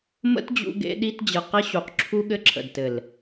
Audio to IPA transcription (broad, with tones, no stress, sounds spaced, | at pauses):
m ə̰˦ t d͡ʑ ṵ˧ ɡ ḛ˧ ɗ i˧ t d͡ʑ ɘ˨ q ɘ˧ ɕ u˨ q ǁʰ u˧ ɠ ɘ˧ ǁʰ ə̰˨ d t ɘ˨ l